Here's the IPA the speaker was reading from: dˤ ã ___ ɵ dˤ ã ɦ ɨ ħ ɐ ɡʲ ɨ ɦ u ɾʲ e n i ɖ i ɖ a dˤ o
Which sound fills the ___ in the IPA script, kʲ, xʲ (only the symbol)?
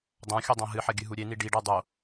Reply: xʲ